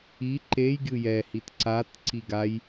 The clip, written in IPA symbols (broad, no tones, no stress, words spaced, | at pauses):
i ǃej ɡʲɯjɛhit ǀatǀi ɡaj